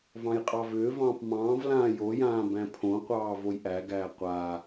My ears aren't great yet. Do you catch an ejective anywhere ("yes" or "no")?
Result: yes